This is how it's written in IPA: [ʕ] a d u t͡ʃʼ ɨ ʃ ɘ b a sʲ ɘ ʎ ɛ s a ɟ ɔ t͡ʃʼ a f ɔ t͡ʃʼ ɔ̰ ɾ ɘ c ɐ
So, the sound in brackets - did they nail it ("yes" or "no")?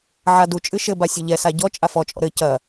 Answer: yes